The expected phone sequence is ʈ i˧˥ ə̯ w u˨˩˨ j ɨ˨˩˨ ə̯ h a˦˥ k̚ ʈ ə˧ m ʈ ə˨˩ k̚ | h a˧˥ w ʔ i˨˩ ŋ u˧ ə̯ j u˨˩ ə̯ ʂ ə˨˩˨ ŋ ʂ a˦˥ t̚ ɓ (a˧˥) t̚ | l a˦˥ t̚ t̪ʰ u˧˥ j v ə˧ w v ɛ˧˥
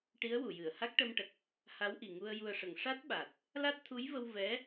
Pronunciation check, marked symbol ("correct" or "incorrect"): incorrect